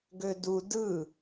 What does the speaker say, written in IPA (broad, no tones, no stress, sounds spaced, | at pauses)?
ɡ ø d u d ɯ